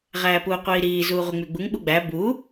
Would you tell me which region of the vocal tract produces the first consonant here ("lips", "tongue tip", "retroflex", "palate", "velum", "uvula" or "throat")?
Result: uvula